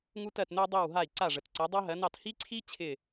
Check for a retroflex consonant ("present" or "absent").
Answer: present